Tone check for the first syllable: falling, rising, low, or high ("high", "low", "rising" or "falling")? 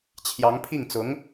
rising